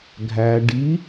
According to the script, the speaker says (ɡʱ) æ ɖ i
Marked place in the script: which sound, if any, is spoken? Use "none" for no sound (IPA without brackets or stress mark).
ɡʱ